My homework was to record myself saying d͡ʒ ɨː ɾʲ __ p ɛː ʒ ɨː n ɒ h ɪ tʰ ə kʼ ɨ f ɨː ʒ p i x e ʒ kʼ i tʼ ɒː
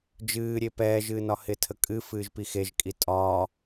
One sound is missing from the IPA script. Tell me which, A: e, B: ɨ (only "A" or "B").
A